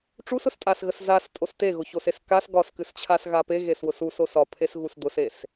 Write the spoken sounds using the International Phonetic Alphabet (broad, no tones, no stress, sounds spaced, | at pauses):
ʈ͡ʂ u s ʊ s tʼ a s ɣ ə s z a s tʼ o s t e ɣ ʊ ç o s e s k a s ɡ ɒ s k ɨ s t͡ɕʰ a s ɣ a p e ɣ e s w ʊ s u s o s ɒ pʰ e s ɣ u s d̪ ʊ s e s